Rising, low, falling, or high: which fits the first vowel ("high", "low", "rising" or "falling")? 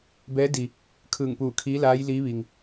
rising